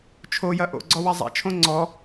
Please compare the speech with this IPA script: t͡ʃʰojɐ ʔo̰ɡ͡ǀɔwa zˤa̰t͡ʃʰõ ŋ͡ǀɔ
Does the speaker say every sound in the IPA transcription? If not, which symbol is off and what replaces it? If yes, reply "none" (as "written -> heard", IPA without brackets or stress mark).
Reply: none